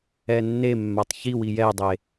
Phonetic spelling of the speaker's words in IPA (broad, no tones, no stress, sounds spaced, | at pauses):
ɛ nː e mː a tˤ ç i w i j ɛ dˤ e